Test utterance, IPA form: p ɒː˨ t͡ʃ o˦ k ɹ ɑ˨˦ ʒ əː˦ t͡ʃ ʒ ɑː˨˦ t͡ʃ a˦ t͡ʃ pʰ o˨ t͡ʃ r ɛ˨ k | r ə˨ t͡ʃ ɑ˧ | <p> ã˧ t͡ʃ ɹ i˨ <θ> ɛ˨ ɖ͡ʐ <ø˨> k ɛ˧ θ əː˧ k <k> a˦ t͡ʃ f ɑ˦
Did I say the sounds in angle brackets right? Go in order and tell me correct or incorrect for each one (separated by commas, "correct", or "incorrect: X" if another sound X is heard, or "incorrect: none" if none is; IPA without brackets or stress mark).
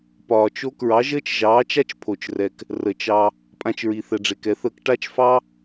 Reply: incorrect: pʼ, correct, incorrect: e˨, incorrect: ʈ